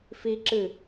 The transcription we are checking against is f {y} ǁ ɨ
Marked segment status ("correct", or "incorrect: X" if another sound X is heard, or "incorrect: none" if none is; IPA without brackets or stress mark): incorrect: i